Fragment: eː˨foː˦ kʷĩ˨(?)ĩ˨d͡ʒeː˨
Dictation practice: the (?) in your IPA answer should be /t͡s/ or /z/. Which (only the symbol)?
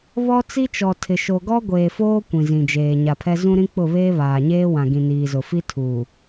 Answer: z